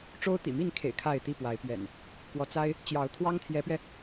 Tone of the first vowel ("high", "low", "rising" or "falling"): high